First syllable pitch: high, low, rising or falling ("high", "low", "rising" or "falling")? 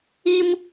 high